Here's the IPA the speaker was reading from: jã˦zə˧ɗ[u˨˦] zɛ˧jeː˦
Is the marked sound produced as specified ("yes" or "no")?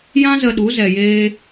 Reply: yes